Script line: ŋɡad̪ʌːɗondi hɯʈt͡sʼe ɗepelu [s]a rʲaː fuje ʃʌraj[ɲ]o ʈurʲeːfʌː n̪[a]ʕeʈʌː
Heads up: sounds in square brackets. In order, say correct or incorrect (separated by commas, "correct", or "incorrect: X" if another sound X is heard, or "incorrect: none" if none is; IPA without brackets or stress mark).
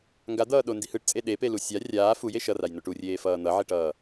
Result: incorrect: sʲ, incorrect: n, incorrect: ʌ